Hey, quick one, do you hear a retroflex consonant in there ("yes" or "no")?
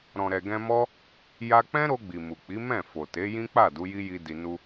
no